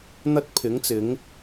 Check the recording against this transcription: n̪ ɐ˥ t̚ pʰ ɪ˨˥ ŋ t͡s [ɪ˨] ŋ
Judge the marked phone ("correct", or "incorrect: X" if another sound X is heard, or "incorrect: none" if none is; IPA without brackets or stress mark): incorrect: ɪ˨˥